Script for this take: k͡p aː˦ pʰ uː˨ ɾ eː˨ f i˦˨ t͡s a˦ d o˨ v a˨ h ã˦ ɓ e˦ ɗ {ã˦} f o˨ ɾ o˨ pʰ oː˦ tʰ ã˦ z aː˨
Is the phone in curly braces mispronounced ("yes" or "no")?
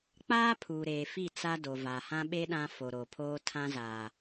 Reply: no